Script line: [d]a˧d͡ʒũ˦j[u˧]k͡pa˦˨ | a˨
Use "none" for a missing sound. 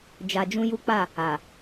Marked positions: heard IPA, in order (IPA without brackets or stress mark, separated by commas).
d͡ʒ, u˦